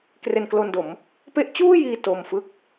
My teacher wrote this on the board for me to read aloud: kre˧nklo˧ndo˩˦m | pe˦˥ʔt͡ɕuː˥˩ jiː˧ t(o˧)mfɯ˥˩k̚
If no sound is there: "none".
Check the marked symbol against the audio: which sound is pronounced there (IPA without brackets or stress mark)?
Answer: o˧